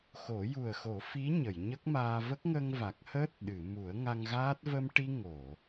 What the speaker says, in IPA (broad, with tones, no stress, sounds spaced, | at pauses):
x o˨˩˦ j u˨˩ ə̯ x o˨˩˦ f i˧˥ ɲ ə˨˩˨ j ɲ ə˦˥ k̚ m aː˧ v ə˦˥ k̚ ŋ ə˧ ŋ v a˨˩ k̚ h əː˦˥ t̚ ɗ ɨ˨˩˨ m u˨˩˦ ə̯ ŋ a˧ ŋ ɣ aː˦˥ t̚ v ə˧ m ʈ i˧ ŋ o˨˩˨